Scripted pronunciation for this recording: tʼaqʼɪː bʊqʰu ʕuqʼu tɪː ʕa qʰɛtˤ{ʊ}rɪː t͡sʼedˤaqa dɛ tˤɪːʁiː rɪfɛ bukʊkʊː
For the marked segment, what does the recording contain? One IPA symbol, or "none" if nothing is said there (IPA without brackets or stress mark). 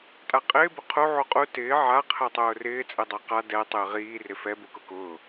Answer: ʊː